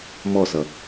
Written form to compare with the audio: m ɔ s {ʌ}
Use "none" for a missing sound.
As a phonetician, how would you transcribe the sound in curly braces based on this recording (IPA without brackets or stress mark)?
ʌ